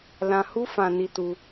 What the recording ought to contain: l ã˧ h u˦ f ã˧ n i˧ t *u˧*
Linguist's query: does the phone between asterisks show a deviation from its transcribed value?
no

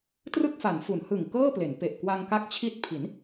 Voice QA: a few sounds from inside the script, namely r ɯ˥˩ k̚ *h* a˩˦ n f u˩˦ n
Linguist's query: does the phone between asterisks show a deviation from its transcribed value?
yes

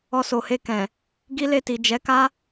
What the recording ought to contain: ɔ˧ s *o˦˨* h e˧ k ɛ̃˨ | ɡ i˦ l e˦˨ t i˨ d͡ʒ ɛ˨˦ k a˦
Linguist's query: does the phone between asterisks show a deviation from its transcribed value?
yes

